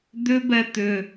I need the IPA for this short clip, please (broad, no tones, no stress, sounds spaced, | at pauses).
d̪ ʏ b ɛ t̪ ʏ